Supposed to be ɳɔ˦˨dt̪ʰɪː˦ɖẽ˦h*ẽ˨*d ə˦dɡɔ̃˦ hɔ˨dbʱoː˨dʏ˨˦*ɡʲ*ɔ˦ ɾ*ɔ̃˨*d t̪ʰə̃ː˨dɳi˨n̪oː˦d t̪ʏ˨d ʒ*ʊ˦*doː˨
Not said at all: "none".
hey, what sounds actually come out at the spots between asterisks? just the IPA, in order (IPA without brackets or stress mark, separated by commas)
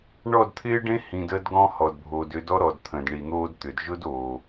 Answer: ĩ˨, d, ɔ˨, ʊ˦